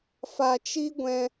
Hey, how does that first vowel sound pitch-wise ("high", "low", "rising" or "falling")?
low